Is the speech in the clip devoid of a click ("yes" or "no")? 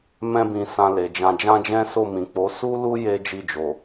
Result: yes